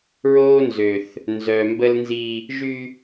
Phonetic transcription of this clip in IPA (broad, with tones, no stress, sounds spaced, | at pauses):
ɹ oː˦ n z ø˨ θ | n z œ˨ m b ə˦ l n z i˦ | ʒ y˦